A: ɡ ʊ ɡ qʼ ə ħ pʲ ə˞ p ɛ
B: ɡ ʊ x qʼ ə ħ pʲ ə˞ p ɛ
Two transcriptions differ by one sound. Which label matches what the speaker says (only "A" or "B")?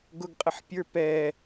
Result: A